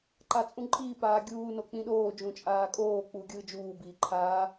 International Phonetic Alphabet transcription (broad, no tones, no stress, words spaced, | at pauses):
ǃat͡sʼũǃʼiː paːɡʲuː nok͡pĩɗoː d͡ʒũt͡ʃʼaːkʼoː k͡puːɡʲɯːd͡ʒuː biːǃʰaː